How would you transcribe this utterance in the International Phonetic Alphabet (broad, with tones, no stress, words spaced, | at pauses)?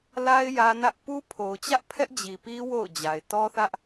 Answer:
la˦ɪ̯ jä˦nä˦ʔ pu˦pʰo˨ʊ̯t͡ɕä˦ʔ pʰɛ˦ʔd͡ʑi˨pi˦ wo̰˦˨ʊ̯d͡ʑa˨ɪ̯ tɔ˦θä˦ʔ